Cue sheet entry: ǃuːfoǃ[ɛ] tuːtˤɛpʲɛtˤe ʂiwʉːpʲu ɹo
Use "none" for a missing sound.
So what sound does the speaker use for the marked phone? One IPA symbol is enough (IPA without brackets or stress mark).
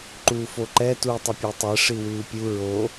ɛ